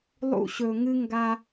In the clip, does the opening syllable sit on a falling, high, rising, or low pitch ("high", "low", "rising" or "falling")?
high